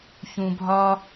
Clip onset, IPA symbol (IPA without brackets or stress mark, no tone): ç